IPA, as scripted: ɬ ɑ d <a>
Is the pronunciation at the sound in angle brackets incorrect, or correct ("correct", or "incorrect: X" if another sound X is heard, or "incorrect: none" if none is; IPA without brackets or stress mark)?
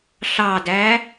incorrect: æ